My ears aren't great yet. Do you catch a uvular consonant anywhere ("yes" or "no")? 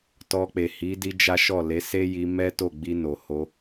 no